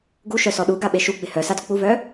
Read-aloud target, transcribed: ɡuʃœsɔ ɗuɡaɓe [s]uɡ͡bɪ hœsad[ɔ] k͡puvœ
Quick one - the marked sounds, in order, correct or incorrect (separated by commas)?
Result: incorrect, correct